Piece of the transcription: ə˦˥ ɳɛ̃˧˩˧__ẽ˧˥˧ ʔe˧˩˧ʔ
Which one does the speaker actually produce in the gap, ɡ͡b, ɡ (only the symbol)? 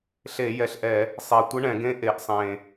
ɡ